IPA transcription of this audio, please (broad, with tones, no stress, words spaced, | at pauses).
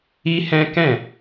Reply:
i˦hɛ̃˦kɛ̃˦˨